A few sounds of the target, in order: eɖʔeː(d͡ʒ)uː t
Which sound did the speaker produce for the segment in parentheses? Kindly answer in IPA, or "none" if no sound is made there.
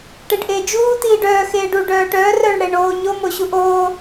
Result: d͡ʒ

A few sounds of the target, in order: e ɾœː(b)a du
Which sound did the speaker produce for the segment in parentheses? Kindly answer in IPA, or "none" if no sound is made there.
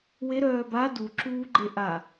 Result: b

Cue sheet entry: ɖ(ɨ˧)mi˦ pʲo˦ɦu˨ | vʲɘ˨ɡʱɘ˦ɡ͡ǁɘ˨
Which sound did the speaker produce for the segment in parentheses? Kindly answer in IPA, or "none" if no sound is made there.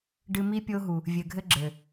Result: ɨ˧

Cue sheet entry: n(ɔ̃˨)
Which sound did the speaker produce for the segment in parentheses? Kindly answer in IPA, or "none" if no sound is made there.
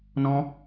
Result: ɔ̃˦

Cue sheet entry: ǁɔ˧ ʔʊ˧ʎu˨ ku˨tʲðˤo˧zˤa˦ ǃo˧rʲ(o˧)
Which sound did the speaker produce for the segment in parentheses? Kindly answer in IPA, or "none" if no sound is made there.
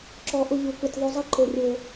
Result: o˧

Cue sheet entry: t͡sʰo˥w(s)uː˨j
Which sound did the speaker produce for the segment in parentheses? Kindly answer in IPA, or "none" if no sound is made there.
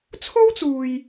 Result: t͡s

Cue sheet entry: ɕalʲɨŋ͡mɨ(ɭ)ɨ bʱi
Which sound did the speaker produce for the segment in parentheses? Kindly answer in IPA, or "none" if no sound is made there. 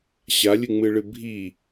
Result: ɭ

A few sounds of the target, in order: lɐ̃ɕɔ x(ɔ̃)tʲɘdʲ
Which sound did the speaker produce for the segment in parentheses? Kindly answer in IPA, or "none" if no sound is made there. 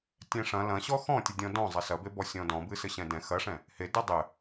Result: ɔ̃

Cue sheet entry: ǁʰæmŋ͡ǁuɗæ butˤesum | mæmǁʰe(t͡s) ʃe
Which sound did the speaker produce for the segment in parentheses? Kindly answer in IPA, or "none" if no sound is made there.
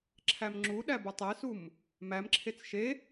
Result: t͡s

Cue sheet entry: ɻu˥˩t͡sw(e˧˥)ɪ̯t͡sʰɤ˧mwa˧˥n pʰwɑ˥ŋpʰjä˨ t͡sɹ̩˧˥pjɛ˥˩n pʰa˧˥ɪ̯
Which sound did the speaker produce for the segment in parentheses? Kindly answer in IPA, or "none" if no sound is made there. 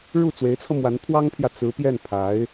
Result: e˧˥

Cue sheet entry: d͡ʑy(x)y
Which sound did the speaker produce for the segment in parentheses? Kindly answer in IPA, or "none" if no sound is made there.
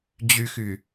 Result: x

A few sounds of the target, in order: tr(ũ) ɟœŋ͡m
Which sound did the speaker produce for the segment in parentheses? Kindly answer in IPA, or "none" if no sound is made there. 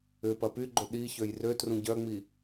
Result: ũ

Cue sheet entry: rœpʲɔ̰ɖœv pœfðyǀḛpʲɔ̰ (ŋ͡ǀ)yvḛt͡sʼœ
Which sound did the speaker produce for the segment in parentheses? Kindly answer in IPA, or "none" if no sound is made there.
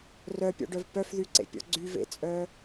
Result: ɡ͡ǀ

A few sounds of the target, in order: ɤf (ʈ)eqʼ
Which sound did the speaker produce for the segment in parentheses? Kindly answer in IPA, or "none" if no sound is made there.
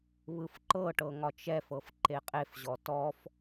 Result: ǃ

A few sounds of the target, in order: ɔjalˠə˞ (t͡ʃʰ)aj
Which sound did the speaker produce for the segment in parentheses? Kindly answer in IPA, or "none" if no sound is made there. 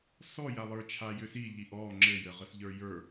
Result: t͡ʃʰ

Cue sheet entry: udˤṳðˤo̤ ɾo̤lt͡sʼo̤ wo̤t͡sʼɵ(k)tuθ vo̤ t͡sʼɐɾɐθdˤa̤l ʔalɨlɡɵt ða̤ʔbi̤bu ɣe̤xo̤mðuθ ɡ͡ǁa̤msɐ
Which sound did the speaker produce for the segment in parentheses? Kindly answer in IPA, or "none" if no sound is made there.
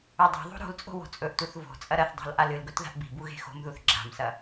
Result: ʔ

